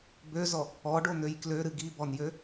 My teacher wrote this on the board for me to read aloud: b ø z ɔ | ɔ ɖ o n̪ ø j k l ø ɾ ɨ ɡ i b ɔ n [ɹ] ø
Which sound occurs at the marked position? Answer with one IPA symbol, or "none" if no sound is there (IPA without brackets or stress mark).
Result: j